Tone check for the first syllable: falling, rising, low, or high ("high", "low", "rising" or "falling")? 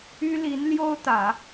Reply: high